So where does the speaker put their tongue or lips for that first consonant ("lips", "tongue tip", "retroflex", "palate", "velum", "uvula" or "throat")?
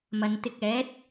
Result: lips